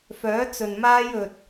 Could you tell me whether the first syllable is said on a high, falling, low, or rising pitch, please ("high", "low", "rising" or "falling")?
rising